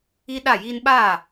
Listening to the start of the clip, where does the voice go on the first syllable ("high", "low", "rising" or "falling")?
high